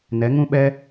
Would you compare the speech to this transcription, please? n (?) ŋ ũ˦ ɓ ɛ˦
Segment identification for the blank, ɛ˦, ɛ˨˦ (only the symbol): ɛ˨˦